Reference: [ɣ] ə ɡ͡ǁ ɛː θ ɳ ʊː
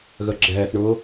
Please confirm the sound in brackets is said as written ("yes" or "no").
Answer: yes